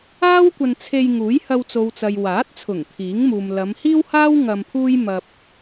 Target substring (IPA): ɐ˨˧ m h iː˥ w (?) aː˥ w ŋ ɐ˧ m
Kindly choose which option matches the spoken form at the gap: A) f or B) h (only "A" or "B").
B